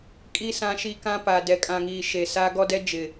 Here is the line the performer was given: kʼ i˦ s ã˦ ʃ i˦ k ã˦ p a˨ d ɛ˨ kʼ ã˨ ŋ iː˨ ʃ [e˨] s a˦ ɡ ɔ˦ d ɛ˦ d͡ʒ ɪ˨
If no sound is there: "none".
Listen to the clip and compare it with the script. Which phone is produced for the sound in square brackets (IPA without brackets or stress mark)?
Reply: e˨